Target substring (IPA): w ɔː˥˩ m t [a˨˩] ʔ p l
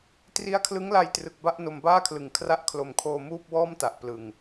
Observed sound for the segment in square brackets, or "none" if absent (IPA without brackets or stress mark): a˨˩